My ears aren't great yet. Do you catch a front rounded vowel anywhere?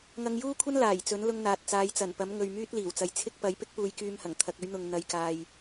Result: yes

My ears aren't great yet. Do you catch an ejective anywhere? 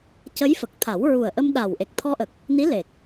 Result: no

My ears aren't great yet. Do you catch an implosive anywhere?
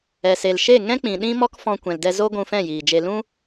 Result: yes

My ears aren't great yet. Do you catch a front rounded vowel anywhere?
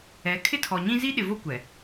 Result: no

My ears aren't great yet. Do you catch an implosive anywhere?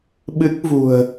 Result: yes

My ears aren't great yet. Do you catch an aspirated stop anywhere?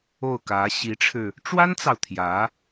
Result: yes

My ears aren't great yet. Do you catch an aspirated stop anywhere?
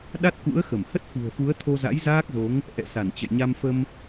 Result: yes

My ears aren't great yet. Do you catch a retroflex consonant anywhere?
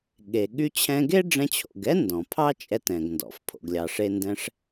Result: yes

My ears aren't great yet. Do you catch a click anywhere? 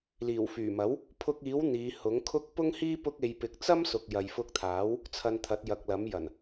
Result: no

